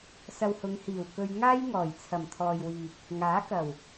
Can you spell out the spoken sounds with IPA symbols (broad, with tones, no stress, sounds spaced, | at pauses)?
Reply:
s ɐ˧ w h ʊ˨˧ ŋ h iː˨˩ w k ɵ˧ ɥ ŋ aː˥ j ŋ ɔː˨˩ j t͡sʰ ɐ˨˩ m t̪ʰ ɔː˨ j w iː˨ k̚ | ŋ aː˨˥ k ɐ˨˩ w